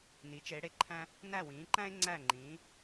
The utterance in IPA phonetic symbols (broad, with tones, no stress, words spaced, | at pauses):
ni˩˧t͡ʃe˩˧ɽe˧˩ǃʰæ̃˧ | næ˧˩wĩː˩˧ǃæ̃˧e̯ ŋ͡ǀæ˧˩ŋ͡ǃĩː˩˧